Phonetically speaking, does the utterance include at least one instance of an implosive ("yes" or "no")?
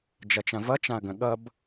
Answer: yes